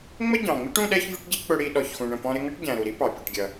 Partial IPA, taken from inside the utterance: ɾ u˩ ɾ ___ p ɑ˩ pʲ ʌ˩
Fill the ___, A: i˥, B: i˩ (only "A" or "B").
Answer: A